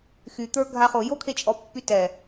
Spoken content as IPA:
x y t̪ ə˞ ɡʱ a χ o j o kʰ e t͡ʃʼ ɔ pː y t ɛ

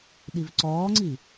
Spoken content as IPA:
ɗ i v ǀ ɔː ŋ͡ǀ i

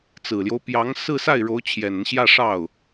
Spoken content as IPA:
t͡s ɹ̩˨˩ l j o˦ ʊ̯ p j ɑ˧˥ ŋ s ɹ̩˥˧ s a˥˩ ɪ̯ ɻ o˧˥ ʊ̯ t͡ɕʰ j ɛ˨˩ n ə˦ n ɕ j ä˥˧ ʂ ɑ˥˩ ʊ̯

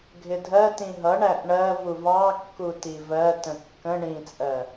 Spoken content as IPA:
ɡʱ ɪ dʱ ɜ t ĩ ɦ ʌ ɳ æ ʔ ɳ ɜ v u v ɑ kː u t i v ɜ t ə̃ kː ə̃ ɳ ĩ t͡sʼ ɜ

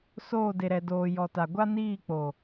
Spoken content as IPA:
s oː˦˨ d e˨ ɾ ɛ˨ d oː˨ j ɔ˨ t a˨ ɡʷ a˦ n iː˦˨ k͡p o˨

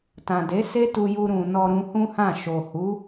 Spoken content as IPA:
t ã˨ d e˨˦ s e˦ t u˧ j u˧ ɾ ũ˨ n ɔ˧ ɾ ũ˧ h ũ˦ h ã˦˨ ʃ o˨ h u˨˦

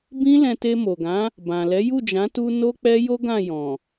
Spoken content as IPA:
b ĩ˦ l ɛ̃˧ t e˧ m o˨ ɡ ã˨˦ | b ã˨ l ɛ˨˦ j u˦˨ d͡ʒ ã˨˦ t u˧ n o˦ k͡p ɛ˦ j o˦ ɡ ã˦˨ j ɔ̃˨

